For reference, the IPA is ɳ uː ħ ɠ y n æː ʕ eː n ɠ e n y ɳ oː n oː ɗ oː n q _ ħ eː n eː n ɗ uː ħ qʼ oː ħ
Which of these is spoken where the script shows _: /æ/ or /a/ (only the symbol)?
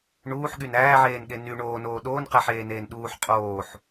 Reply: æ